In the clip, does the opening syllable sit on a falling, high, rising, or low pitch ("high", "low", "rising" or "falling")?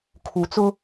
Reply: low